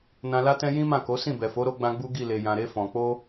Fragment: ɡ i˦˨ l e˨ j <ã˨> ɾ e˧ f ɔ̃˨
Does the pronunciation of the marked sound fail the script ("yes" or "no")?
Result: no